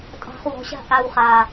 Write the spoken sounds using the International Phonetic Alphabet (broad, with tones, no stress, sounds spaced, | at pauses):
tʼ ɑ̤˨ χ w ɔ̤˨ ɕ a̤˧ ʔ a˨ w χ a˨